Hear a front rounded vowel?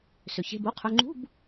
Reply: yes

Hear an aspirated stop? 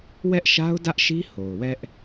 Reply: no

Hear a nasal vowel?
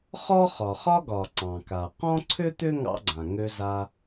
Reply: yes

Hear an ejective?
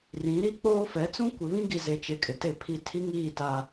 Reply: yes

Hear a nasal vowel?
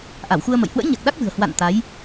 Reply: no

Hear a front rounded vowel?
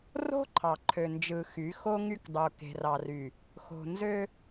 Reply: yes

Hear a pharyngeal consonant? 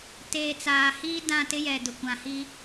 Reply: no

